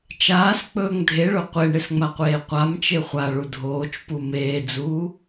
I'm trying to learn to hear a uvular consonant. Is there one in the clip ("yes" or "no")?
yes